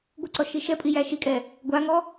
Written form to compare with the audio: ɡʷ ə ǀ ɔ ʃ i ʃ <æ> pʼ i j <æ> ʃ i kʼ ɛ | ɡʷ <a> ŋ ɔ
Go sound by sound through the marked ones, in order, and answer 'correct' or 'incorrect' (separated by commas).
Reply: incorrect, correct, correct